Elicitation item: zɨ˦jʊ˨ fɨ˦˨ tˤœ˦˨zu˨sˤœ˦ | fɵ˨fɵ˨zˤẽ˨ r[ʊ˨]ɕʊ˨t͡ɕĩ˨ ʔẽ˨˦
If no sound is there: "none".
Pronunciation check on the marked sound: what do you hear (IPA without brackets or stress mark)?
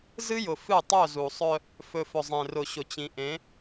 ʊ˨